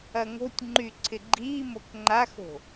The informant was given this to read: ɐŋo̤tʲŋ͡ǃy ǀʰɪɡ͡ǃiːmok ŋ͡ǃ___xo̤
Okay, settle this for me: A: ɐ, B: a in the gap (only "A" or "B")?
B